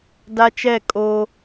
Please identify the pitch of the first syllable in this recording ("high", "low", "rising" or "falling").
high